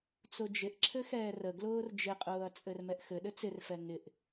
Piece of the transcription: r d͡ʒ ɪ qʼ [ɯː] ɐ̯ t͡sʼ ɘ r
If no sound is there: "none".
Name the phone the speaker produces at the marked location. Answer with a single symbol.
ʊː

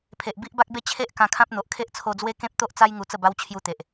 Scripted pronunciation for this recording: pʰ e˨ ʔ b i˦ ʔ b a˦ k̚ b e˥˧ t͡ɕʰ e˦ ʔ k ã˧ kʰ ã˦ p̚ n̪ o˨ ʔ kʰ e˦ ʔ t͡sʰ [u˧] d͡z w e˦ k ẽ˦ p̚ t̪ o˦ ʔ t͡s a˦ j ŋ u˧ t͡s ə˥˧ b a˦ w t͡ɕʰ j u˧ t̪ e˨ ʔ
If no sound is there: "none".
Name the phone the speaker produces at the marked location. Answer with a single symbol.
o˧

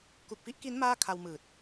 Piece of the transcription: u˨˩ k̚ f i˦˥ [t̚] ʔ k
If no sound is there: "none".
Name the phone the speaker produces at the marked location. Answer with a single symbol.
none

